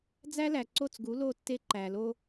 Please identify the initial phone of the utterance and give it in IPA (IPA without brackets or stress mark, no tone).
d͡z